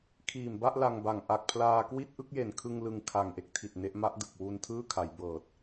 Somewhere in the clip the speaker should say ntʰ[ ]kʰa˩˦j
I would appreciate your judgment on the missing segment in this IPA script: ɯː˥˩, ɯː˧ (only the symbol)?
ɯː˥˩